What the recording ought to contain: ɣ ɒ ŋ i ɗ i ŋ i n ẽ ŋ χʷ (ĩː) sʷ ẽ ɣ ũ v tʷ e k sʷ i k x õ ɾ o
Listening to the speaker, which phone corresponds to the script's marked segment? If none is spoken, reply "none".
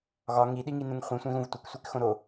ĩ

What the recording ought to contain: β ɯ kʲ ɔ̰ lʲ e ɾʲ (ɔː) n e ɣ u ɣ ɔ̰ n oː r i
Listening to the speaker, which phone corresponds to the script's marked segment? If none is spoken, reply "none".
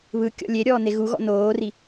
ɔː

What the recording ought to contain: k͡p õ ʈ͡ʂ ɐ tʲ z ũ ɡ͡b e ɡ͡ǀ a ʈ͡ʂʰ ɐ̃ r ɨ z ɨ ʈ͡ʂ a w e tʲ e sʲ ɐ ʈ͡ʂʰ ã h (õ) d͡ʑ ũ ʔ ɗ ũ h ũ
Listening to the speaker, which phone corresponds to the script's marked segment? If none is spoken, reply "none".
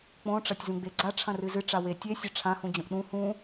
ũ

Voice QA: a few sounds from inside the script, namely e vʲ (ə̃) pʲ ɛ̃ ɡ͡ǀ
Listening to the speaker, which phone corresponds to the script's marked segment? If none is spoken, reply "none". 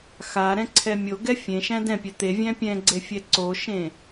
æ̃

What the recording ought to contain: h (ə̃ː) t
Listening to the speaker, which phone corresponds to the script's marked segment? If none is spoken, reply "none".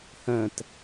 ə̃ː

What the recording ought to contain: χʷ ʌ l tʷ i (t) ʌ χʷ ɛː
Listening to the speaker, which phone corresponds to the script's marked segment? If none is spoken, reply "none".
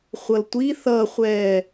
θ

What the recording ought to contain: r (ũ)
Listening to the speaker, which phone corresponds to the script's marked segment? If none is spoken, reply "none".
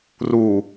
u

